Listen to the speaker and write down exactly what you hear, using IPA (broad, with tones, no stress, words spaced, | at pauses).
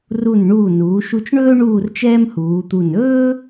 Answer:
ru˧˩nɳuː˧˩ nuː˩˧ʃu˧t͡ʃɳɵː˥ ɳuː˥˧rt͡ʃɛː˥mhuː˩˧t̪u˧˩n ɵː˥